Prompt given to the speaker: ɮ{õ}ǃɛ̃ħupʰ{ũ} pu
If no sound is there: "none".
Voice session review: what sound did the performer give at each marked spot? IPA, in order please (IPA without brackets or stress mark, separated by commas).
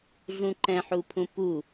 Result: ũ, ũ